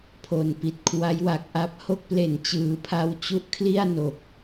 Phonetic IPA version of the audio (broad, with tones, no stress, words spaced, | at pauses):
pʰo˨˩npi˨˩t̚kʰwa˦˥jwa˨˩k̚ ʔa˦˥p̚ ho˦˥k̚ple˨˩nt͡ɕɯː˩˦ pʰa˦˥wt͡ɕu˦˥ʔ kʰli˥˩a̯ no˨˩k̚